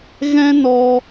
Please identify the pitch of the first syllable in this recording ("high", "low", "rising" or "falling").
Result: high